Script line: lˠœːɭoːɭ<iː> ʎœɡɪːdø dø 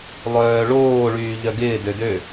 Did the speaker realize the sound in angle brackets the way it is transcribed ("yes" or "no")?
no